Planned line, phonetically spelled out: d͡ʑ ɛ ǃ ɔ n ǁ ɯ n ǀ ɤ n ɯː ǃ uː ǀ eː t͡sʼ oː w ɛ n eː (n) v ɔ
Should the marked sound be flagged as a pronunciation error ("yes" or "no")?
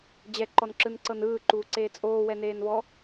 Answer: no